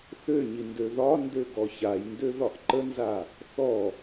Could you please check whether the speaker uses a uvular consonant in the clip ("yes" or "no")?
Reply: no